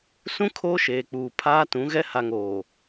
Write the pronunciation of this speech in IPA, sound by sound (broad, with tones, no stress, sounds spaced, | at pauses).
s ũ˦ kʰ oː˦ ʃ eː˨ k͡p uː˨ pʰ aː˦ t ũ˨˦ ɣ ɛ˦ h a˨ ŋ oː˨